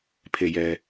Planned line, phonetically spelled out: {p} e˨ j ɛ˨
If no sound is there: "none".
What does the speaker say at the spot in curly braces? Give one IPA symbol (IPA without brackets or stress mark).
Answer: pʰ